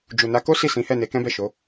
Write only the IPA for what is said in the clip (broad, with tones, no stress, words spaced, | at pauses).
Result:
d͡ʒu˨na˨˦ko˦ si˦˨sĩ˨˦hɛ˦˨ ne˨˦kɛ̃˦bɛ˦˨ʃo˨˦